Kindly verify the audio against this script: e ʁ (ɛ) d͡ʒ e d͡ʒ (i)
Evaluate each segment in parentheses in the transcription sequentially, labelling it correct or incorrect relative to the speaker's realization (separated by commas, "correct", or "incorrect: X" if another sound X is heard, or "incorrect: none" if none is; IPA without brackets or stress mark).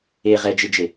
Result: correct, incorrect: e